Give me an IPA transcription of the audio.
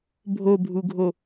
bʱ o bʱ u ɡʱ o

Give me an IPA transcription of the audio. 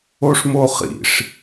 o ʂ m o χ ḭ ʂ

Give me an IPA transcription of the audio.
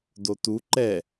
d o t u ǃ ɛ

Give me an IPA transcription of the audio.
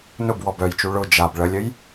n ʊ b w ɔ b œ j t͡ʃ u ɭ ʊ d͡ʒ a b ɭ ə lʲ ə j

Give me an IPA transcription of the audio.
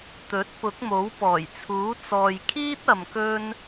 t̪ ɵ˨˥ t̚ p ʊ˨˥ k̚ m o˨˥ w p ɔː˨˩ j t͡sʰ uː˨˥ t͡s ɔː˨ j kʰ iː˥ t̚ ɐ˨ m k ɵ˥ n

